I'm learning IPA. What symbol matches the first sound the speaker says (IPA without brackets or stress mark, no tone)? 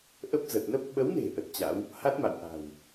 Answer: ʔ